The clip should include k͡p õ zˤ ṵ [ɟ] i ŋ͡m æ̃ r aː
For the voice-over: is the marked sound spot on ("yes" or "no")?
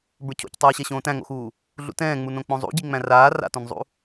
yes